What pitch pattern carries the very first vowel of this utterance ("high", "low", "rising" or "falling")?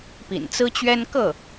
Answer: low